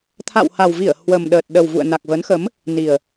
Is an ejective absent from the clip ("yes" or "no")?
yes